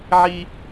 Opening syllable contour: high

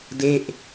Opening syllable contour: falling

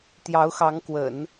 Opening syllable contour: rising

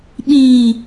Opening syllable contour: low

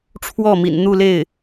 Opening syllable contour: falling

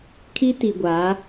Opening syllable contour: high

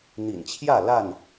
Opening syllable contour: low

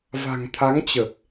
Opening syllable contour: low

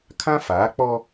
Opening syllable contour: high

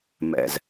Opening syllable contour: low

